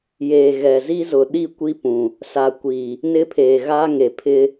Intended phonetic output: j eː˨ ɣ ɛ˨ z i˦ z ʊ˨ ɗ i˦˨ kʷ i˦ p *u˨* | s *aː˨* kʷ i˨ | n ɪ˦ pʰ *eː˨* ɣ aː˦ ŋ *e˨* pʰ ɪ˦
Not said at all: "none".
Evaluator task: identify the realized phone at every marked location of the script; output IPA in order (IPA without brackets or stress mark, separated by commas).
ũ˨, a˨, eː˨, e˨